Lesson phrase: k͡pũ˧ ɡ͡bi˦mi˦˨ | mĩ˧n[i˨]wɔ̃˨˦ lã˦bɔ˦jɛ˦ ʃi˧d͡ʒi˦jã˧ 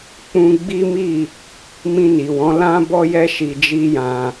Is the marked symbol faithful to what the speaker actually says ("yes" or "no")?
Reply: yes